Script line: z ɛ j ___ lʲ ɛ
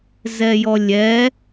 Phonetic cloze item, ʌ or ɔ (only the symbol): ɔ